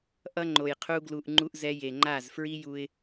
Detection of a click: present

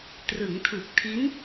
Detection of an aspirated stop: present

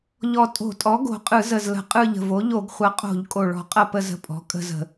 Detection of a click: absent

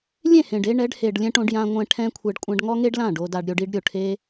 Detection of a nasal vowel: present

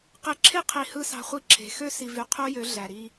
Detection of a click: present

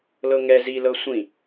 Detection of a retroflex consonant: absent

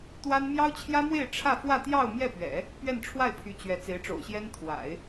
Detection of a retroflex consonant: present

